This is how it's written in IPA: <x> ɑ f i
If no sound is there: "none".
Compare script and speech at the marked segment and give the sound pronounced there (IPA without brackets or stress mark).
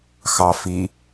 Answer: x